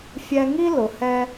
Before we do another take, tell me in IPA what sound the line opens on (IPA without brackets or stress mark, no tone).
fʲ